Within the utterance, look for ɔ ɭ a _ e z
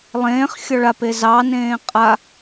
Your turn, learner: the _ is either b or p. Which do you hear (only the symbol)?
p